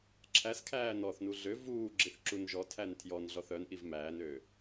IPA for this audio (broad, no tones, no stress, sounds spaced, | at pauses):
ǁʰ æ s kʰ æː n ɔ θ n u ɮ ø v uː ɡ͡ǁ i θ ǁ u n ʒ ɔ tʰ æ n tʰ j ɔ n ɮ ɔ θ œ n ʔ i v m æː n ø